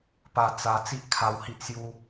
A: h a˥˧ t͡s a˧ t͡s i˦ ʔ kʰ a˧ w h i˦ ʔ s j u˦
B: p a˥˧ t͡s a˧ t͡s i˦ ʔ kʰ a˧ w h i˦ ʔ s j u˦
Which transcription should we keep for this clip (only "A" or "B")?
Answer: B